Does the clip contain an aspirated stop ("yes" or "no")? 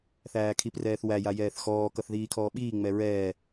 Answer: yes